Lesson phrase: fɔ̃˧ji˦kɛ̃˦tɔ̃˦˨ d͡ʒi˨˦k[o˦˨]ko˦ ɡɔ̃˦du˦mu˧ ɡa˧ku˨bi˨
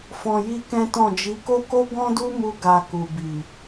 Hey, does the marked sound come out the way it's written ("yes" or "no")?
no